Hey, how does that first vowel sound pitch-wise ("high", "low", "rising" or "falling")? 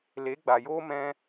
rising